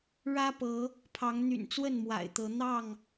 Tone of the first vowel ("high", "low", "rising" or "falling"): high